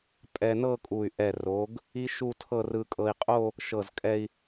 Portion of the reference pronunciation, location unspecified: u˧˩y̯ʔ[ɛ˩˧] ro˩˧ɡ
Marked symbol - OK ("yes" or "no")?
no